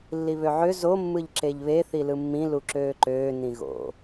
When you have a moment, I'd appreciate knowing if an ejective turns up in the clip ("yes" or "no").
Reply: no